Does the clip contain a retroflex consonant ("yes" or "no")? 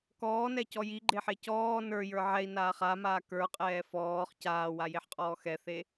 no